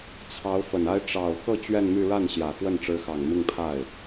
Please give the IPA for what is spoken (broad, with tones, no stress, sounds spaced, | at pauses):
t͡sʰ ɑ˧˥ ʊ̯ f ə˨˩ n a˥ ɪ̯ ʈ͡ʂ ɑ˨˩ ʊ̯ x ɤ˥˧ t͡ɕ ɥ ɛ˥˧ n m y˥˧ ɻ a˥˩ n ɕ j ä˨˩ x w ə˥˩ n ʈ͡ʂ ɻ̩˧˥ x ɑ˨˩ ŋ m i˥˧ ŋ pʰ a˥˩ ɪ̯